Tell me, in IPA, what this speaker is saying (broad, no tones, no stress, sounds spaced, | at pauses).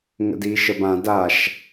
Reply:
ŋ ə̰ d iː ʃ ə b ã d a ʃ